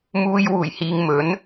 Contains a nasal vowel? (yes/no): no